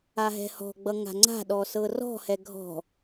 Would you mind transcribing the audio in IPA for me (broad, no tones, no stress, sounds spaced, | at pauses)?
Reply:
a ɦ ɛ̤ h ɔ̤ ɡ͡b ʌ ŋ a̤ ŋ͡ǀ a̤ ɗ ɔ s ɤ r ɔ̤ h ɛ ɡʱ ɔ̤